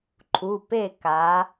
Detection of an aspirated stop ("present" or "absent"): present